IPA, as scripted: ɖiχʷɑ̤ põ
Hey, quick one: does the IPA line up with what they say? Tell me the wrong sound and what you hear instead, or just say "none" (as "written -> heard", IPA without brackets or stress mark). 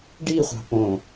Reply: none